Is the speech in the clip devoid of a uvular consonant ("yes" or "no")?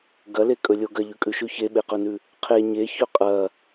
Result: no